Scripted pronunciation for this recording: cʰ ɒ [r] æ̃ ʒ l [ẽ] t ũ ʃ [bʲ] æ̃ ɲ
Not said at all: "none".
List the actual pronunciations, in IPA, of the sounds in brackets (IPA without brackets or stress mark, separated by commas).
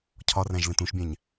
r, ẽ, bʲ